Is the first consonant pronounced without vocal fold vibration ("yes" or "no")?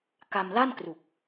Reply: yes